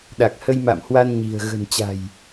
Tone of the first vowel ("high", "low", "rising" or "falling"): low